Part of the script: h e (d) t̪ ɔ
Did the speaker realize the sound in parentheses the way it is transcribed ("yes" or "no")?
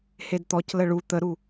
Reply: yes